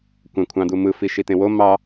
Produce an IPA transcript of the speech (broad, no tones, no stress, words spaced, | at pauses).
kʷæ̃kʷʰɑ̃d̪umɯ fiʃit̪ẽwo mɑ